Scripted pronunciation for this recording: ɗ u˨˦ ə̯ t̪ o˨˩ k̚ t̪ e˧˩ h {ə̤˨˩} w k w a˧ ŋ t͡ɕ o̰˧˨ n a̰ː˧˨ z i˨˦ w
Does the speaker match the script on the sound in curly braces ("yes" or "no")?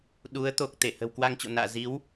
yes